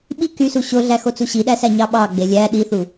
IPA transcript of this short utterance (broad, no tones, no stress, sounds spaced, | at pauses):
ɓ i k y s u ɕ o ɮ æ x o t͡s u ɕ i ɗ æ s æ ɲ ɑ ɓ ɑ ɡ͡b e lʲ æ ɗ i θ u